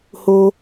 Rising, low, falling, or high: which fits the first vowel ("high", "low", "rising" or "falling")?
high